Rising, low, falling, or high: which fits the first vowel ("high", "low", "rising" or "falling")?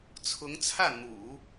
rising